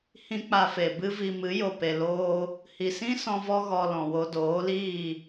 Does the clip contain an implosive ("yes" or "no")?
no